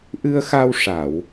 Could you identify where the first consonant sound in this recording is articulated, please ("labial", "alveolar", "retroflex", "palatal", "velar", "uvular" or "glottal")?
glottal